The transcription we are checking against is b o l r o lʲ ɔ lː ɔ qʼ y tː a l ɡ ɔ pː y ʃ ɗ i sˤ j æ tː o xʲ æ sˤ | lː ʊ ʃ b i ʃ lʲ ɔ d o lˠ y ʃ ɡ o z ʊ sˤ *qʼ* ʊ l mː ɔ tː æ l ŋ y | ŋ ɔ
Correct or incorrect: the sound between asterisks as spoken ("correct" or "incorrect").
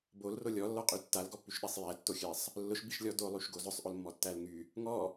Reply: incorrect